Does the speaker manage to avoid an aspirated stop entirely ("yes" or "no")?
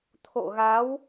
no